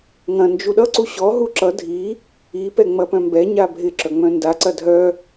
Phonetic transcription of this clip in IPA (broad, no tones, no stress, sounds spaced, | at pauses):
ŋ ɐ̃ n d͡ʒ u ɗ ʌ ǀ u ɕ ɔ ɦ u ǁ ʌ dʱ i | i p ɛ ŋ͡m ɐ p œ̃ m b ɛ ɲ a bʱ ɪ ǁ œ ŋ͡m œ̃ n d a ǀ ɐ dʱ œ